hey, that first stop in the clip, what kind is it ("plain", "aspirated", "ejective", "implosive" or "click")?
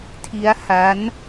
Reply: aspirated